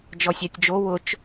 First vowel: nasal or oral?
oral